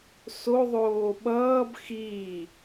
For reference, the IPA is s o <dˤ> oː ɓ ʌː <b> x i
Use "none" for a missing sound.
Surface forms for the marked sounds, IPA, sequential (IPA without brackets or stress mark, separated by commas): ðˤ, b